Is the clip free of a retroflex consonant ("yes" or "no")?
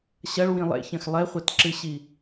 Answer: no